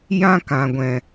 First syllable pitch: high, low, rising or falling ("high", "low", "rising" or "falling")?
high